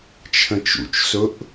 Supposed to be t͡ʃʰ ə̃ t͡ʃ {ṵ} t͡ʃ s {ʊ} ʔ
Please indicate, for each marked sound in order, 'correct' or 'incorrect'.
correct, correct

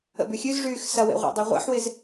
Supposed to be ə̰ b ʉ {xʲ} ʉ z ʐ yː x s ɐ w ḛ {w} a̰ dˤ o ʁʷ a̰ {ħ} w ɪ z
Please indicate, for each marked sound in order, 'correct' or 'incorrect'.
correct, incorrect: ʁʷ, correct

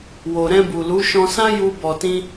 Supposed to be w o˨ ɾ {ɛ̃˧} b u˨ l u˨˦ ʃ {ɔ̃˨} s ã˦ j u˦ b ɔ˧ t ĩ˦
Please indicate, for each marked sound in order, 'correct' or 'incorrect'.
correct, incorrect: ɔ̃˧

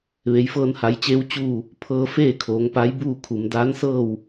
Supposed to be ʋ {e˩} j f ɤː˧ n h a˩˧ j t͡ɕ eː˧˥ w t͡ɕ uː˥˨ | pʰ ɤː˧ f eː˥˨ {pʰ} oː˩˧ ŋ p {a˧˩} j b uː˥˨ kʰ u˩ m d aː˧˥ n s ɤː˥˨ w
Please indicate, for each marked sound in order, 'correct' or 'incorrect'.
correct, incorrect: kʰ, incorrect: a˧˥

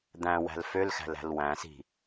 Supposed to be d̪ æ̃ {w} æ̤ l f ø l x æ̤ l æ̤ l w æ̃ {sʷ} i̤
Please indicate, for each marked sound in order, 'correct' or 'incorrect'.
correct, incorrect: s

